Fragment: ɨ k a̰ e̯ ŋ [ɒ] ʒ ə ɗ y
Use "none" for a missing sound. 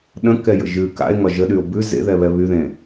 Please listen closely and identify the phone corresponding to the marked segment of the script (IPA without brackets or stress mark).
ɒ